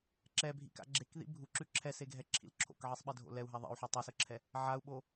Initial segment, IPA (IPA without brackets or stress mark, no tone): ǁ